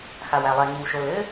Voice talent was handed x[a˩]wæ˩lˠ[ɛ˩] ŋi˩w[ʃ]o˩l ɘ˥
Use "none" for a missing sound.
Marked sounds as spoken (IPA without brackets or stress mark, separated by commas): a˩, ɛ˩, ʃ